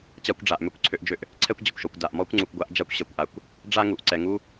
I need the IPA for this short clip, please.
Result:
t͡ɕ a˦ kʷ ɖ͡ʐ a˨ ʔ m ø˦ kʷ ǀʰ ø˦ ʔ d͡ʒ ø˦ ʔ | ǀʰ ɛ˦ kʷ d͡ʑ ə˨ kʷ ʃ ɔ˨ kʷ d a˨ ʔ m ɔ˦ kʷ ŋ͡ǀ u˨ kʷ ɡʷ a˦ ʔ d͡ʒ a˦ kʷ ɕ ɛ˨ kʷ ʔ a˨ kʷ | ɖ͡ʐ a˦ ŋ u˨ ʔ ǀ ɛ˨ ŋ u˦

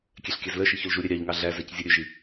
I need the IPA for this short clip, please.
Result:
kʲ ɛ ɬ kʲ æ z l œ ʃ i ç ɵ l ʒ u ɾʲ ɛ ɾʲ ɑ ʎ ŋ ɑ ɮ æ z æ c zʲ ɛ ɾʲ ʉ ʒ i

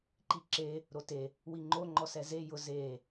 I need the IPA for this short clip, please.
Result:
ǃ i ǁ e | ɾ o t e | w i ŋ͡ǃ o ŋ͡ǃ ɔ s ɛ z e j ʊ z e

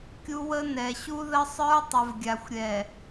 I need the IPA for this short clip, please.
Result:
kʲ u˦ w ə˦ n ɛ˨ ɕ u˦ ð ə˦ sˤ ə˞˦ tˤ ə˨ v ɡʲ a˨ xʷ ɾʲ ɛ˨

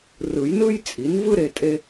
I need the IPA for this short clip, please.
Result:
r ɯ˨˩˦ j n ɯ˥ j t͡sʼ i˩˥ n v ɯ˥ ɾ e˧ tʼ e˥

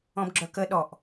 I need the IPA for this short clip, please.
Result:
ɔ̃ b ɡ͡ǁ œ k ə ɗ ɔ ʔ

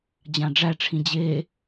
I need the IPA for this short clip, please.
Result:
d͡ʑ ã ɖ͡ʐ æ ʈ͡ʂʰ ĩ d͡ʑ e

